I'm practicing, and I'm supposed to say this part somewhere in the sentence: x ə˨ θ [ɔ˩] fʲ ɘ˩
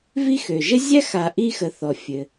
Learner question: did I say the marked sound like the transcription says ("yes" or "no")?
yes